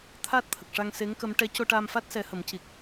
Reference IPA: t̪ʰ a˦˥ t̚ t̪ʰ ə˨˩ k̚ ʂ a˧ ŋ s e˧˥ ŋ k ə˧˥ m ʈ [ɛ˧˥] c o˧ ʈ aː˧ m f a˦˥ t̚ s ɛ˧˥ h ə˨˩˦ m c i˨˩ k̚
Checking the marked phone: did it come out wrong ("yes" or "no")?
no